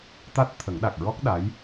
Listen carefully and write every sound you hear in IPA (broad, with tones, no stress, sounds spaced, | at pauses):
t̪ a˦˥ t̚ t̪ʰ ə˨˩˦ ŋ ɗ a˨˩ k̚ ɹ ɔ˦˥ k̚ ɗ a˧˥ j